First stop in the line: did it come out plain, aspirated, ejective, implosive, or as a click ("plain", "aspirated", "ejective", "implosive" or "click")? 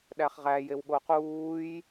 implosive